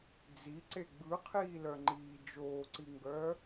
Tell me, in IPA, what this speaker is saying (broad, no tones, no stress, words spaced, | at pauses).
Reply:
d͡ziǀe ɡ͡bɯqʰiːlœŋ͡ǃiː d͡ʒoːǀiŋɡœː